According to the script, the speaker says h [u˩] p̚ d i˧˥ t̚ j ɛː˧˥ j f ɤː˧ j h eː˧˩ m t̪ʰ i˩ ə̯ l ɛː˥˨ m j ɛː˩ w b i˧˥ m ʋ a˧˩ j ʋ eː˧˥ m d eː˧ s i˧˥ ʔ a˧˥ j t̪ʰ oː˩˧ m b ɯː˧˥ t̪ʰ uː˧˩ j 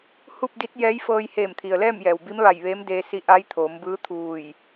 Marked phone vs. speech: incorrect: u˥˨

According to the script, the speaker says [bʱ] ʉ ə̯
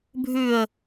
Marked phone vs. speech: correct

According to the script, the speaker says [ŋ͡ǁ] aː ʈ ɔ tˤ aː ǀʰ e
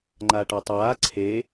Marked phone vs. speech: incorrect: ŋ͡ǃ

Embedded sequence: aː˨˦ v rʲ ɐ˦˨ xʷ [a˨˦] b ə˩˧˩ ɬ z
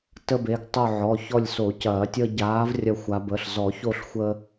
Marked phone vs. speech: correct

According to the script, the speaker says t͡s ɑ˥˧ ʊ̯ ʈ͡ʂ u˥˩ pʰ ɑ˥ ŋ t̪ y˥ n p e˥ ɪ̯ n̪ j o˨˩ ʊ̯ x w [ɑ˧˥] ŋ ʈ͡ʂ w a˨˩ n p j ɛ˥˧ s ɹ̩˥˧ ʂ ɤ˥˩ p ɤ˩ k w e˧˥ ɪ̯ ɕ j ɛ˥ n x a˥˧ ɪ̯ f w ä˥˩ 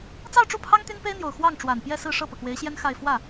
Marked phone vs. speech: incorrect: ɑ˥˩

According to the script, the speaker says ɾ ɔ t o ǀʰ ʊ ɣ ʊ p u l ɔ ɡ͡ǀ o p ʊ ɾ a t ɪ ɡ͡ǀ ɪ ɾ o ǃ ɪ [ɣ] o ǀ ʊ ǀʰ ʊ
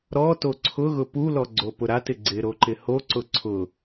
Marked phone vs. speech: incorrect: h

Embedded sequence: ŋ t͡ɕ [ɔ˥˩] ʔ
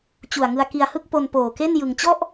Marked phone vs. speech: correct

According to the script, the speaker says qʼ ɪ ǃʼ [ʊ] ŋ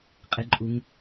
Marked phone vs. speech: incorrect: u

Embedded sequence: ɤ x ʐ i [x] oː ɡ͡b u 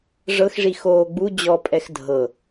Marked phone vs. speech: correct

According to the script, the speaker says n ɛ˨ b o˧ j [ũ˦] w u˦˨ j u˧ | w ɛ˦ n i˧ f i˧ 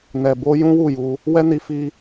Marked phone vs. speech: correct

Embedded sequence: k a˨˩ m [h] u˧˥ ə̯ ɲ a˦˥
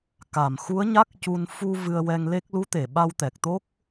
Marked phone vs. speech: incorrect: x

